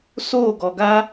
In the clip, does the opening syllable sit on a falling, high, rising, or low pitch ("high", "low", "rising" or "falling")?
falling